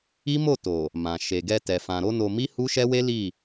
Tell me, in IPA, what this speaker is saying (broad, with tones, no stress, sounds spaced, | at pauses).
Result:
i˦ m o˦˨ t o˨ | m ã˨ ʃ e˨ ɡ ɛ˧ t ɛ˨ f ã˨ ɾ o˧ n o˧ m i˦ h u˦ ʃ ɛ˦ w e˦ l i˦˨